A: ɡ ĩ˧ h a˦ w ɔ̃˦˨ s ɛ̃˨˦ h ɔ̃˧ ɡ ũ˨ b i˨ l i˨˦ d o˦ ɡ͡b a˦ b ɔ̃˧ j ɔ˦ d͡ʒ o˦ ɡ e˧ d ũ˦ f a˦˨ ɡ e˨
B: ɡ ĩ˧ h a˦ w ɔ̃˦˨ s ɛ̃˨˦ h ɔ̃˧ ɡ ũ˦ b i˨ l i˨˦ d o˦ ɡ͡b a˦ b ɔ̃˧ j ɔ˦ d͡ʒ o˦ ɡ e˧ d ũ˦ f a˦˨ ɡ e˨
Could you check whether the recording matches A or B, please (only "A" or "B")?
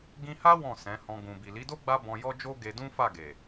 A